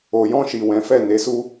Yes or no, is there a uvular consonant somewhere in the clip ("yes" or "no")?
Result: no